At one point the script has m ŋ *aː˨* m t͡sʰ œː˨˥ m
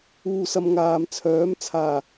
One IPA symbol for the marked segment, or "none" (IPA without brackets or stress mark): aː˨